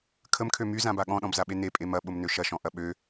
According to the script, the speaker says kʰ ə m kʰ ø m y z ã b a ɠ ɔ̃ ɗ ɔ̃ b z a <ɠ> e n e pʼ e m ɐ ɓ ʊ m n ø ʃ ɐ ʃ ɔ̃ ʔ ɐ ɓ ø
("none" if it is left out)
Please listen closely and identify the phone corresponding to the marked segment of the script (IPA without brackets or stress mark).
ɓ